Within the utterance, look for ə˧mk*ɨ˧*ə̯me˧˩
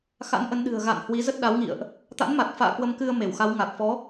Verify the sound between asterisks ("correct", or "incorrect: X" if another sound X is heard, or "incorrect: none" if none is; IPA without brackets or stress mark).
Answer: correct